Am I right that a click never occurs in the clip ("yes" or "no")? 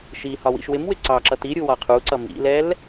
no